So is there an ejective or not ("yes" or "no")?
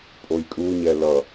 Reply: yes